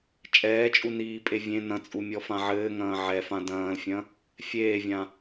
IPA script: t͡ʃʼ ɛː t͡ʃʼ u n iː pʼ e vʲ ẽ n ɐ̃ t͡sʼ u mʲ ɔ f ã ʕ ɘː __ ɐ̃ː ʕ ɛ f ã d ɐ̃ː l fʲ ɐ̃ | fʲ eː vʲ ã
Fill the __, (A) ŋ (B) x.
A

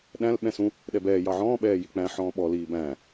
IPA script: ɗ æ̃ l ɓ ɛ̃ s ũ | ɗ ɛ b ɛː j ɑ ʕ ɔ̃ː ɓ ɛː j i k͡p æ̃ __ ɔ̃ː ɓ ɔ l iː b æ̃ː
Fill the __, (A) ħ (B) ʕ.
A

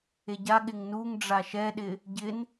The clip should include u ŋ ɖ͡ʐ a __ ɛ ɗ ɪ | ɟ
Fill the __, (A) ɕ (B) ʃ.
B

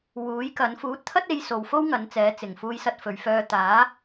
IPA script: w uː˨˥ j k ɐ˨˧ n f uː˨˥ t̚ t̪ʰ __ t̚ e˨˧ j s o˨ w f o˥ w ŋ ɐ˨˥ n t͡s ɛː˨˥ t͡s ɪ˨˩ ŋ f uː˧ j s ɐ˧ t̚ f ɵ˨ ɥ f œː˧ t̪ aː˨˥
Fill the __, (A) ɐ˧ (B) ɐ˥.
B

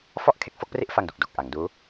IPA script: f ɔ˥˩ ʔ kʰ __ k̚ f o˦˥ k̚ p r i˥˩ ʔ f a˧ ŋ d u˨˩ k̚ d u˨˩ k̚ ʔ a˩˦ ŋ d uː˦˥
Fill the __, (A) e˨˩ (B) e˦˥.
B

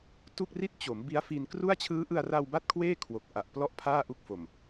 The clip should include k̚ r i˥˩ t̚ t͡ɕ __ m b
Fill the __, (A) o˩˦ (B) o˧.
A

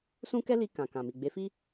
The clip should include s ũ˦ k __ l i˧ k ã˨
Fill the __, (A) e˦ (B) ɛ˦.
B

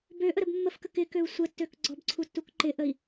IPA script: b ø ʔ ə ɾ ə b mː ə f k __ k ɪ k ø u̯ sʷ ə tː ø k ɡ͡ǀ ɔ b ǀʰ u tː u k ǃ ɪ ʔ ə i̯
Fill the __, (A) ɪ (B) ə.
B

